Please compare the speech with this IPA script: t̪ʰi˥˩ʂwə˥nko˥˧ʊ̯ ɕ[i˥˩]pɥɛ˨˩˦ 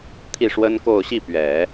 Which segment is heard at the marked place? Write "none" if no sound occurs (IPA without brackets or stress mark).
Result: i˥˩